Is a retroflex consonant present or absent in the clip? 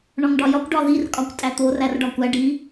present